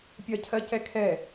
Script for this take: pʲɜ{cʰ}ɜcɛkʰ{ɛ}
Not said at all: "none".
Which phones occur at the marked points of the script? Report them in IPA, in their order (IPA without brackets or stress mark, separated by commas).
cʰ, ɛ